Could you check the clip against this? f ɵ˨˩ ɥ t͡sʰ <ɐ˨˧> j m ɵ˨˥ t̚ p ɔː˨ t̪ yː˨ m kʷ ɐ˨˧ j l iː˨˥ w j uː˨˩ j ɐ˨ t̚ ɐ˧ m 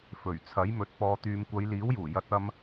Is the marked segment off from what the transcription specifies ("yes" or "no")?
yes